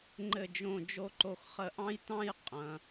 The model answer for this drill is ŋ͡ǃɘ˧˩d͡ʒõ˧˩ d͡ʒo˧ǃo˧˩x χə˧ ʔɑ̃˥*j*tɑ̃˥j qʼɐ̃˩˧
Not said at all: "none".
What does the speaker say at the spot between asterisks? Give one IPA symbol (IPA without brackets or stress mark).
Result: j